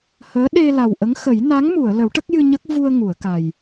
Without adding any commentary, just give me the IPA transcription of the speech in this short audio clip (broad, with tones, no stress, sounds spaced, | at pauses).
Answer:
h əː˧˥ ɗ e˧ l a˨˩ w ʔ ə˧˥ ŋ x ə˨˩˦ j n a˧˥ ŋ m u˨˩˨ ə̯ l ə˨˩˦ w ʈ ə˦˥ k̚ j ɨ˧ ɲ ə˦˥ k̚ v u˧ ə̯ ŋ u˨˩˨ ə̯ k a˨˩ j